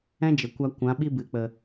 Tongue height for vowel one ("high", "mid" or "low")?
mid